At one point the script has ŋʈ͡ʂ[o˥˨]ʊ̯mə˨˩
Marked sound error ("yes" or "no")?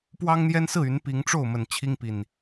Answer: no